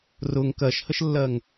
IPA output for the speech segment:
r ʊ ŋ k ɜ ʃ h ə ʃ lː ɜ ŋ

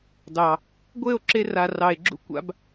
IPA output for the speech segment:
d ɑ˨ | ɡʷ e˦˨ o̯ ǁ e˧ r a˨ r ɑ˨ e̯ ɡ͡ǁ ṵ˦ kʷ a̰˧ b

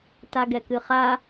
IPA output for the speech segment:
t a ɡ ɛ k ɨ χ a

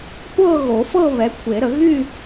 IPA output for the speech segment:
kʷ ɤ˥˧ ɣ o˨˩˦ f ɤ˥˧ β ɛ˨˥ kʷʰ e˨˩˦ ɾ ə˨˩˦ ɣ y˥˧

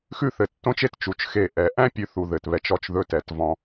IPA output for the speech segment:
x ʉ˥˧ θ ɘ˩˧ tː õ˥ t͡ʃ e˥ t t͡ʃ u˧˩ t͡ʃ x e˧˩ ʔ ɛ˩˧ ʔ æ̃˥ pʲ ʉ˧ θ u˧ ð ɘ˧˩ t β ɛ˧ t͡ʃ ɔ˥ t͡ʃ ð ɵ˥ t ɛ˧˩ t v ɔ̃˧

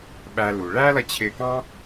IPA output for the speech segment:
ɓ æ˧ l u˨ ɭ æ˦ l ʌ˧ t͡ɕʰ ɪː˧ k ɑ̃˦

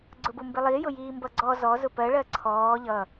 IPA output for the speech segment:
ɡ͡ǀ ʊ b ʊ m b ɪ lˠ i j ʊ j iː m b ʌ ɡ͡ǀ ɔ z ɔ z ʊ p ɜ ɭ ɜ ǀʰ ɔː ʎ ʌ

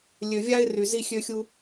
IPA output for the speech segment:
lʲ ø˨ vʲ a˦ ɪ̯ r y˨ z i˦ xʲ ø˦ xʲ u˦

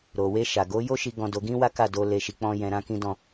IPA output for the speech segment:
ɾ o˨ w e˧ ʃ a˨ ɡ o˨˦ j o˦ ʃ i˧ ɡ ɔ̃˧ d o˧ ɡ ĩ˦ w a˦ k a˦˨ d o˧ l e˧ ʃ i˧ k͡p ɔ̃˦ j ɛ̃˧ ɾ ã˦ k ĩ˦ d ɔ̃˦˨

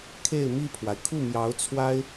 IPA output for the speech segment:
kʰ e˥˧ ɪ̯ m i˥˩ pʰ w a˩ ɪ̯ kʰ u˥˩ m j ɑ˧˥ ʊ̯ t͡sʰ w a˥ ɪ̯

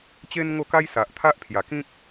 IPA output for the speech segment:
t͡ɕ e˦ n ŋ o˥˧ k a˦ j s a˨ ʔ t̪ʰ a˦ ʔ pʰ j a˨˩ k ĩ˦ k̚

